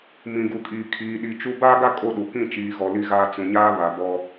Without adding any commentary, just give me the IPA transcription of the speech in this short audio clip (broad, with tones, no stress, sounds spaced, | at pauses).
m ĩ˨ ɡ u˨ kʼ iː˨ kʰ iː˨ ɗ i˨ t͡ʃ u˦ b aː˦ ɡ a˦ kʼ o˦˨ ɗ u˨ k ĩ˦˨ t͡ʃ iː˨ ɣ ɔ˨ l i˦ ɣ aː˦ t͡s ũ˨ ɲ aː˦ β a˨ b ɔ˦